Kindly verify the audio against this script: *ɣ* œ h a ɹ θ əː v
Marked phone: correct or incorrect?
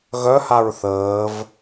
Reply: correct